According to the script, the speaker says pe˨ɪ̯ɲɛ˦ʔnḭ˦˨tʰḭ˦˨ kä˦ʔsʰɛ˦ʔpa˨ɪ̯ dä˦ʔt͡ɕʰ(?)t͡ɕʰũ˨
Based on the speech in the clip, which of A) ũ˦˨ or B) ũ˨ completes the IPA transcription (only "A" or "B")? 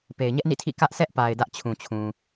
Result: B